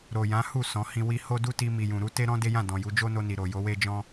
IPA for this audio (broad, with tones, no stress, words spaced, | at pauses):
ɾo˨jã˨˦hu˦˨ sɔ̃˨˦hĩ˧ wi˧ho˦du˦ti˧ mi˨jũ˨ɾu˧ te˦ɾɔ̃˦ de˦jã˦˨ dɔ̃˨ju˨˦ d͡ʒo˦no˧ni˨ ɾo˨jo˨˦we˦ d͡ʒɔ̃˦